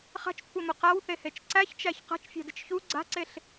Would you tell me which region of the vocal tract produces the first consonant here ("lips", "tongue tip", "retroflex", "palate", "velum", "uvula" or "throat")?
uvula